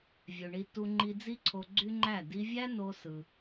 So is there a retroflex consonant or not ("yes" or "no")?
yes